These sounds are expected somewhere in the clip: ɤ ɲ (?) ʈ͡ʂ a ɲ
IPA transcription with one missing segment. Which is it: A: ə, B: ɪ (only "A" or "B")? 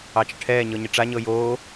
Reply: B